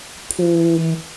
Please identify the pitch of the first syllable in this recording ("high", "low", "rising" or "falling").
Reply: low